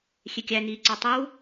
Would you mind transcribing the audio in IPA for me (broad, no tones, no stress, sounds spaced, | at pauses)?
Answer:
xʲ e kʲ æ n iː ǀ ɒ tˤ o w